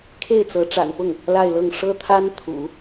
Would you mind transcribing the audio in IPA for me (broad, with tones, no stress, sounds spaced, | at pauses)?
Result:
kʰ e˥˩ ɪ̯ t͡s ɤ˧˥ ʈ͡ʂ a̰˨˩ n p ʊ˥˩ ŋ | l a˥˧ ɪ̯ l ɤ˥˩ ŋ ʂ ɤ˥ t̪ʰ a˥ n t̪ʰ ṵ˨˩˦